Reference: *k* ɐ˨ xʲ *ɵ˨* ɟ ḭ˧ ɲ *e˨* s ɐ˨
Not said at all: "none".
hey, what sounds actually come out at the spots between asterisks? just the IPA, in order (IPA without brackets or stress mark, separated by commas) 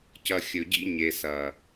c, ɵ˨, e˨